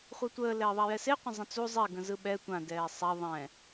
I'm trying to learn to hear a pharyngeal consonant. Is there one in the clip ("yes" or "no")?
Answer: no